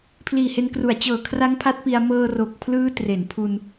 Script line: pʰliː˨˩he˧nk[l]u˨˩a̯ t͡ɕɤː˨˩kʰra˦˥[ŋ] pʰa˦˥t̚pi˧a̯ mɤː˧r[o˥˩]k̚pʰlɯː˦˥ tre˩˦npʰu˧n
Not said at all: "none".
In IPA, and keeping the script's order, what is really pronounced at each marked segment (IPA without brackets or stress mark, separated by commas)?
r, ŋ, o˨˩